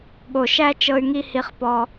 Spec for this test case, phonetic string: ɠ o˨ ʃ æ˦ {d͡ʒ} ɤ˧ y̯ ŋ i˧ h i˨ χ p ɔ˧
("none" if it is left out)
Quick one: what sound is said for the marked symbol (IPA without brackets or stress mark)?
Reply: t͡ʃ